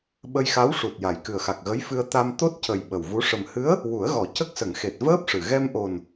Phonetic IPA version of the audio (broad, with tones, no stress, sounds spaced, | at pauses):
ɓ ə˧ j x a˧˥ w ʂ u˨˩ t̚ j a˨˩ j k ɨ˨˩ ə̯ x a˨˩ k̚ ɣ ə˧˥ j f ɨ˧ ə̯ t̪ a˧ m t̪ o˦˥ t̚ c ə˨˩ j ɓ ə˨˩ w v u˧˥ ʂ ə˨˩ m h ɨ˧˥ ə̯ | w u˨˩˦ ə̯ ɣ ɔ˨˩˦ c ə˦˥ k̚ s ə˨˩˨ ŋ x e˨˩ t̚ v əː˦˥ p̚ ʂ ɨ˨˩ ɣ ɛ˧ m ʔ o˨˩ n